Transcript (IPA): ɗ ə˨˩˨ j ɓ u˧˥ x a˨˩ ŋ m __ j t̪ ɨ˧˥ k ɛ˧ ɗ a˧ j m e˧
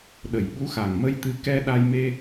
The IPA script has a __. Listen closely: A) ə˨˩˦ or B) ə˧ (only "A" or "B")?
B